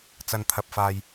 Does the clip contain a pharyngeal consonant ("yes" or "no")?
no